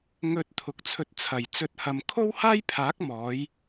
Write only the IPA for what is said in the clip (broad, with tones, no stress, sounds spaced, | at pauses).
ŋ ɵ˨˥ t̚ t̪ʰ ʊ˨ k̚ t͡sʰ ɵ˧ t̚ t͡sʰ ɐ˨˩ j t͡s ɵ˧ t̚ h ɐ˨ m kʰ o˥ w h aː˥ j pʰ aː˨˥ k̚ m ɔː˨˥ j